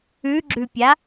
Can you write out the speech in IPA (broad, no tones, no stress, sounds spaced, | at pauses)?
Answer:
ʉ ɡ͡ǁ ʉ pʲ a